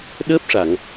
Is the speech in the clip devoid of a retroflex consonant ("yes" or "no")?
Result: no